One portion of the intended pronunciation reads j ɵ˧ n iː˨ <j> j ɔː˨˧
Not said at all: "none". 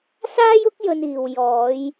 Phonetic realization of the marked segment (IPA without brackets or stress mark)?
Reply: w